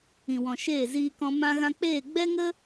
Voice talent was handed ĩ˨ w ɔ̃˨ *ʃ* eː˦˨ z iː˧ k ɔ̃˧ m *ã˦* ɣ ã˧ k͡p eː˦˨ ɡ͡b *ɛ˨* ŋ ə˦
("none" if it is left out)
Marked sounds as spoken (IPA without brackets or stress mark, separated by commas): ʃ, ã˧, ɛ˦